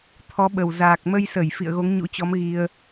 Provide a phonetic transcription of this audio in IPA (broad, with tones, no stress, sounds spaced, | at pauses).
t̪ʰ ɔ˨˦ ɓ ə˨˩ w z aː˨˩ k̚ m ə˧ j s ə˧˩ j f ḭ˧˨ ə̯ ɣ o˨˦ ŋ ɲ ṵ˧˥ t͡ɕ ɔ˨˦ m ɣ i˧ ə̯